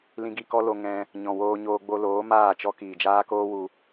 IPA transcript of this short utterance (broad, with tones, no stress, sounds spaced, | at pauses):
l ĩ˧ ɡ i˧ k ɔ˦ l o˧ ŋ ɛ̃˧ | ɲ ɔ̃˨ w oː˧ ɲ oː˧ ɡ͡b o˧ l oː˨˦ m aː˦˨ t͡ʃ ɔ˦ k iː˨ d͡ʒ aː˦ k oː˦ w u˧